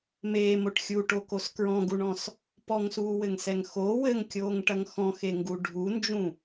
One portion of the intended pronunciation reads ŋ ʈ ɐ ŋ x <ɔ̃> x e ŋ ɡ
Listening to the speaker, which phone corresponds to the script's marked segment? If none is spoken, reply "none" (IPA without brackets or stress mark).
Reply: ɔ̃